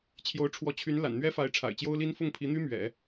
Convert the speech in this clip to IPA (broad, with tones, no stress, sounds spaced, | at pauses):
t͡ɕʰ j o˧˥ ʊ̯ ʈ͡ʂʰ w ɔ˧˥ t͡ɕʰ y˧˥ n l a̰˨˩ n n̪ ɥ ɛ˥ f a˧˥ ɪ̯ ʈ͡ʂʰ a̰˨˩ ɪ̯ t͡ɕ j o˥ ʊ̯ l i˥ n f ʊ˥˩ ŋ pʰ i˧˥ n̪ y˥ m ɥ ɛ̰˨˩˦